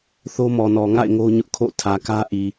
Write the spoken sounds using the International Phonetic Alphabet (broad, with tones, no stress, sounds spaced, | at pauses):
θ o˦ m ɔ˨ n ɔ˨ ŋ a̰˦˨ ɪ̯ ŋ o˦ ɲ ʊ˦ ʔ kʰ o̰˦˨ tʰ ä˨ k ä˦ ʔ i˨